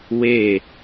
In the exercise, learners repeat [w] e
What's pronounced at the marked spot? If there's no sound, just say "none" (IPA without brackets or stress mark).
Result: w